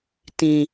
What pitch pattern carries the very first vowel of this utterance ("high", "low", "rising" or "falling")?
low